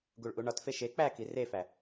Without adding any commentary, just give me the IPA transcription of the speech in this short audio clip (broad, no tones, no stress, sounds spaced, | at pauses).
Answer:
ɡ u ɭ ʔ u ɳ ɒ t f e ʃ e k͡p æ k i r e f æ